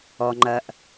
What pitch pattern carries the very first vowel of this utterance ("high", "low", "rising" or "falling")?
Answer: low